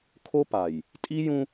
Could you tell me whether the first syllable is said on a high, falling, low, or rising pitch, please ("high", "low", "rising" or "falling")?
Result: high